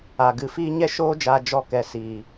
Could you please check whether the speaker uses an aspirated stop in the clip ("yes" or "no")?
no